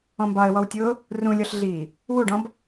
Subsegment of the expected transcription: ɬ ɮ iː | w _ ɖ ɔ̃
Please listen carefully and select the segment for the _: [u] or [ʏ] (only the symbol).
u